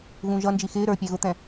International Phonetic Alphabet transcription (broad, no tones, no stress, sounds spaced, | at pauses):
ɣ ũ ʒ ʌ n d͡ʒ i x ɪː ɾ ə˞ pʲ ɛ ɣ ʊ t̪ ɛ̃